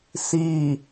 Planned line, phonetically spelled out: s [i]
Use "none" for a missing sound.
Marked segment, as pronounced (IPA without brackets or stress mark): i